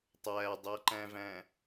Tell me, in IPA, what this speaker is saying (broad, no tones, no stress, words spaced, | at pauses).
tˤædˤɜǃæ̃væ̃